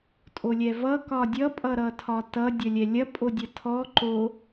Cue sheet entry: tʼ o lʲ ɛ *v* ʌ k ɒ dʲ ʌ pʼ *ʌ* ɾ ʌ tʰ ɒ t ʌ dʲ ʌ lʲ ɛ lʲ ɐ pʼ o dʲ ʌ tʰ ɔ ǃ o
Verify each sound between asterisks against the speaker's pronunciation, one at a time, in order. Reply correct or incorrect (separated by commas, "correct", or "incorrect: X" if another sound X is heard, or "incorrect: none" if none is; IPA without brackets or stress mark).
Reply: correct, correct